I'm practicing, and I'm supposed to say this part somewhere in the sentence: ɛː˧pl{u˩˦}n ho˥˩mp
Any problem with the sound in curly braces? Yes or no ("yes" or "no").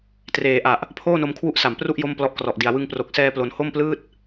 yes